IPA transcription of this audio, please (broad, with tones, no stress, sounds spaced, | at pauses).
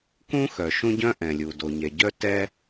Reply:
k ũ˥ x œ˩ ʃ ũ˥ ɟ œ̃˥ ʔ ɛ̃˩ lʲ u˩ d o˩ ɲ ɛ˩ ɟ œ˥ t ɛ˥